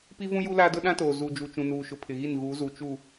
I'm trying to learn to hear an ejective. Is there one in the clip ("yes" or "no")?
no